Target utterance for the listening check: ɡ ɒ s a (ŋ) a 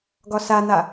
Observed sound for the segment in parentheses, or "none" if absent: n̪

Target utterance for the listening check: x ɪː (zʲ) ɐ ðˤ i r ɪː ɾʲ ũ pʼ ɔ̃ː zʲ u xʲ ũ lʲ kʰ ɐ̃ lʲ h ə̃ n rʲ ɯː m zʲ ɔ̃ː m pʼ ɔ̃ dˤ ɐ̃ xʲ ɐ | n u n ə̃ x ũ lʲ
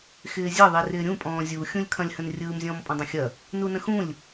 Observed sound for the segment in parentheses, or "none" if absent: zʲ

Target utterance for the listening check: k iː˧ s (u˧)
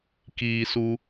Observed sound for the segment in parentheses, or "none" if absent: u˧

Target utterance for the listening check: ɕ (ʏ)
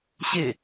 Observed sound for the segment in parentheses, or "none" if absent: ɪ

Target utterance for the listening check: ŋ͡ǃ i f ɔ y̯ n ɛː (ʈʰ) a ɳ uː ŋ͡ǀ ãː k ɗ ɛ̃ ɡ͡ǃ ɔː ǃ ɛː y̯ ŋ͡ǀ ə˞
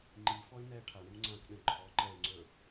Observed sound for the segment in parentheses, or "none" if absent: ʈʰ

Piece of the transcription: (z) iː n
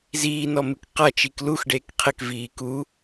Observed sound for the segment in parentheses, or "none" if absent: z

